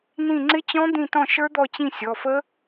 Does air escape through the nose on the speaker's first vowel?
yes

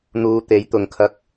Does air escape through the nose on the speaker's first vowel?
no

